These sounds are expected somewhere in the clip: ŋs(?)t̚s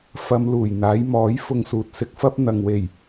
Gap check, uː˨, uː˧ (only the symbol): uː˨